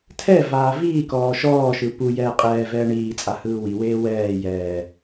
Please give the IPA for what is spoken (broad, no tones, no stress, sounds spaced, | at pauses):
tʰ ɛ v aː v iː k ɔː ʃ ɔː ʃ ɯ p u j ɛː qʼ ɛː v ɛː ɳ iː t͡sʼ a h ɯː w i w eː w ɛː j ɛː